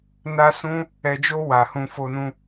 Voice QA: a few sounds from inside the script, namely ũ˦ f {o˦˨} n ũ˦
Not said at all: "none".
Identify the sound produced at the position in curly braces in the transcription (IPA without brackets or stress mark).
o˦